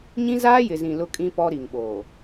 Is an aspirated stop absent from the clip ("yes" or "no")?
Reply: yes